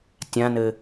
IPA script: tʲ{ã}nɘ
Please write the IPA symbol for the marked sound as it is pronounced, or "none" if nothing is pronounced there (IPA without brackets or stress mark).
ã